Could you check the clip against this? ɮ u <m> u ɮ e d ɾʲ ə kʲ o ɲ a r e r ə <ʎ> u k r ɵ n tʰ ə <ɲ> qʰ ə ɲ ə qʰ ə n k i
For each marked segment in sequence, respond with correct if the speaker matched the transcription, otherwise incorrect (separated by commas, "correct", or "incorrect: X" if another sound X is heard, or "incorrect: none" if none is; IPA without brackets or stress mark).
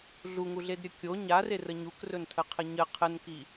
incorrect: ŋ, incorrect: ɲ, incorrect: none